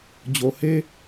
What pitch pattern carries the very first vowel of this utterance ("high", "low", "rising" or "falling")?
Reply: low